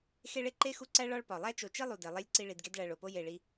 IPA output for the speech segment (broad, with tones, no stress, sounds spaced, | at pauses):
x e˦ ɭ e˦ ǃ e˥ x u˦ ǀ æ˥ ɭ ɒ˦ ɭ p ɒ˩ lˠ æ˥ t͡ʃ o˨ t͡ʃ i˥ lˠ u˩ d e˩ lˠ e˦ lʲ ǀ i˦ ɭ i˨ d ɡ e˥ d ɭ æ˨ ɭ o˩ p o˥ j e˨ ɭ i˦